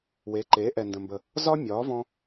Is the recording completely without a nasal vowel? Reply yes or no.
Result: no